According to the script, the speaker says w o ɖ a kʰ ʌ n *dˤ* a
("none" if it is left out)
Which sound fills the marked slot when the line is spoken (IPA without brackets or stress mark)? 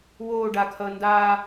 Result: d